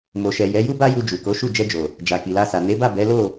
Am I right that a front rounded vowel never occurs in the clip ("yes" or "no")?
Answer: yes